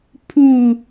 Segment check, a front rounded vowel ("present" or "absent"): absent